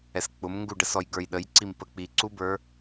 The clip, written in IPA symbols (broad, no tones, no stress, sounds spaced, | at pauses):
ɛ s k͡p ʊ m ŋ ɡ u ɖ ə s ɔ j ɡ ə˞ j ɗ ə j ǀ i m p ə k͡p i ǀ u b ə˞